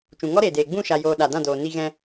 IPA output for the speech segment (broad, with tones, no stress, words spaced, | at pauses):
t͡ʃũ˨ŋɔ˦ɾeː˨deː˨ ɡ͡bũ˦˨ʃa˨joː˨ ɗa˨ dã˦˨doː˨ni˧ɣɛ̃˧